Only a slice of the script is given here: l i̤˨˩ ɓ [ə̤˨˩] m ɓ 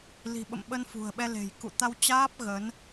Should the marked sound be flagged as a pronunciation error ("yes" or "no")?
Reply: yes